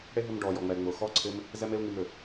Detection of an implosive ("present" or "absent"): absent